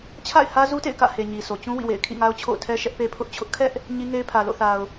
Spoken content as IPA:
t͡ɕʰ a̰˦˨ ɪ̯ h ä˦ z u˦ t ḛ˦˨ ɪ̯ k ä̰˦˨ h e˨ ɲ i˨ sʰ o˨ t͡ɕ ũ˦ w ḭ˦˨ w ḛ˦˨ ɪ̯ kʰ ḭ˦˨ ŋ a˦ ʊ̯ t͡ɕʰ o̰˦˨ ʊ̯ tʰ ɛ˦ ʃ ɛ˦ ʔ p e˦ pʰ ʊ˦ ʔ t͡ɕʰ ʊ˦ ʔ kʰ ɛ˦ ʔ | ɲ i˦ ŋ e˦ ɪ̯ pʰ ä˨ l o̰˦˨ θ a˨ ʊ̯

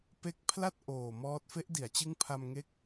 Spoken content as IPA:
p e˦˥ k̚ pʰ l a˥˩ t̚ ʔ oː˨˩ m ɔː˦˥ t̚ f e˦˥ ʔ d i˩˦ a̯ t͡ɕ ɯ˦˥ ŋ pʰ a˧ m ŋ e˦˥ k̚

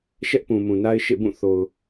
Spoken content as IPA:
ʃ ɛ˦ ʔ p ũ˨ m ũ˨ n a˦ ɪ̯ ʃ ḛ˦˨ b ũ˦˨ θ o˨ ʊ̯

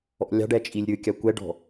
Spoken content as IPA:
ɔ̰ lʲ ɑ̤ ɖ ɛ t͡ʃʼ i lʲ ɾʲ ɯ kʲ a kʷ ɛ ɖ ɔ̤

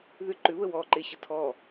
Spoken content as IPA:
ð ʏ ǃ ʏ β ə w ɔ ǃ e ɕ ə tʰ ɔ

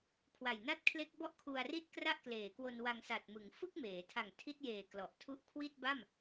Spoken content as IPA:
kʰ w a˨˩ j n a˥˩ t̚ kʰ l e˦˥ k̚ b ɔ˥˩ ʔ kʰ u˧ a̯ r i˥˩ t̚ k r a˥˩ ʔ k l eː˩˦ k w o˧ n w a˧ ŋ s a˨˩ t̚ m ɯ˩˦ ŋ f ɯ˥˩ k̚ m eː˩˦ tʰ a˨˩ ŋ tʰ i˦˥ t̚ j eː˨˩ k l ɔ˨˩ ʔ tʰ u˦˥ ʔ kʰ w i˥˩ t̚ b a˥˩ m

